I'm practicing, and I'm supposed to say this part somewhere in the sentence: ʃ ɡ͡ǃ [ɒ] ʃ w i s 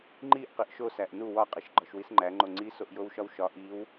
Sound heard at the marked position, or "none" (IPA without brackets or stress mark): ɒ